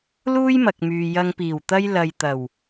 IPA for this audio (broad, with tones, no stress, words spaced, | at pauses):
luː˥jmɐ˨k̚myː˨ jɐ˨ŋpiː˨˩wt̪ɐ˧j lɐ˨jt̪ɐ˨˩w